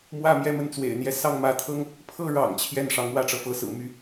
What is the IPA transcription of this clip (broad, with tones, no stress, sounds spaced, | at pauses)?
m w ä˥˧ m j ɛ˥˧ m ə˥˩ n t͡s w ḛ˨˩ ɪ̯ n̪ j ɛ˧˥ s ɑ˥˩ ŋ m ä˧˥ t̪ʰ ɤ˥ ŋ | pʰ ɤ˥˩ ɻ ɑ̰˨˩ ŋ t͡ɕʰ j ɛ˥˩ n ʂ ɑ˧˥ ŋ w ä˥˩ ʈ͡ʂ ɤ˩ f ɤ˧˥ s ɹ̩˨˩ m y˧˥